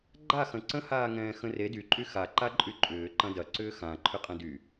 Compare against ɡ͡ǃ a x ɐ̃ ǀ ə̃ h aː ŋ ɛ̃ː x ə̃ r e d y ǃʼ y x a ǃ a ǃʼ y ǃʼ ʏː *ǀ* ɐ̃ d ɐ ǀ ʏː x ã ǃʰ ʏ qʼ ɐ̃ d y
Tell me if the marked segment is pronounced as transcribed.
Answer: no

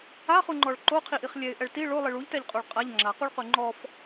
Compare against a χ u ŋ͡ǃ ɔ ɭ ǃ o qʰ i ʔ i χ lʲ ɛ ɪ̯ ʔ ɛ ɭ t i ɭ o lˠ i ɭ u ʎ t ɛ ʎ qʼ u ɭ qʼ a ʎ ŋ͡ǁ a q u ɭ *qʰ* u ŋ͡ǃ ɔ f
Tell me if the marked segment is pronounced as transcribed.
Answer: no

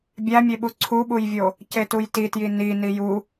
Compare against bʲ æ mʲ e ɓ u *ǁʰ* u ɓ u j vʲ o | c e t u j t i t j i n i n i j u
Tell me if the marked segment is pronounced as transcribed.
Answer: no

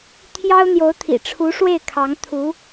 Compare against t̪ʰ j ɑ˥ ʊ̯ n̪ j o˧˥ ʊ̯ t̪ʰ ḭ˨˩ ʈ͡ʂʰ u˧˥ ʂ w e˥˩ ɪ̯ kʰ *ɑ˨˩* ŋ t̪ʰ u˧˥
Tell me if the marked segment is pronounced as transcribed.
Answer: no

